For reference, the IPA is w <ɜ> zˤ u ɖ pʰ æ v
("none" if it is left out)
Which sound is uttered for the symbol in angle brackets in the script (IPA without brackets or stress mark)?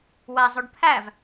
æ